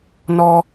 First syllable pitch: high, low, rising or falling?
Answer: high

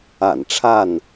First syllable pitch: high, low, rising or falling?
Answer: low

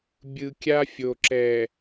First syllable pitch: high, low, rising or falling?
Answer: low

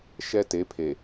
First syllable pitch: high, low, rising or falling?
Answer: high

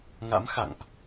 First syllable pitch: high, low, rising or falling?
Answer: rising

